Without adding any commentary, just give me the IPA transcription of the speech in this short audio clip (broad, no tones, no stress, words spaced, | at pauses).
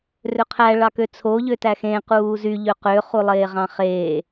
røqʰæ ɭɑkøt͡sʰo ʎøtæxẽ quːzy ʎøqø χulˠeːʁɑ̃χeː